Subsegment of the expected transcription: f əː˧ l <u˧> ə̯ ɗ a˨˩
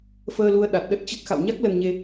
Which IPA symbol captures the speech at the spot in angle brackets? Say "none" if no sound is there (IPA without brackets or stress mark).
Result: u˧